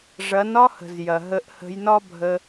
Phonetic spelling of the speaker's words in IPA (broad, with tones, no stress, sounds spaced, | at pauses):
ʐ ɐ˩˥ n ɒ˥ h ə̤˩ z j ɐ˩ ɦ ə˧ ʔ h ə̤˧ j n ɒ˥ bʱ ə˧